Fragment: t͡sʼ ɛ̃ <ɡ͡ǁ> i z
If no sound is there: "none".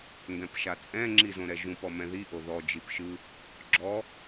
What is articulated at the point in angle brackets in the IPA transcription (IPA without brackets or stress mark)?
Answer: ŋ͡ǁ